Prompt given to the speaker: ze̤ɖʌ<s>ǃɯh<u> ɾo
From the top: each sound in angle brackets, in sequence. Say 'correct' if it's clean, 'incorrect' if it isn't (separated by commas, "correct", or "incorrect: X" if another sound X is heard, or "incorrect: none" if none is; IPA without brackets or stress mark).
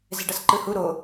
correct, correct